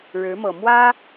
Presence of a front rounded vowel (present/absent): absent